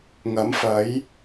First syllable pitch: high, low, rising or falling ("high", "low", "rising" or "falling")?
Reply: rising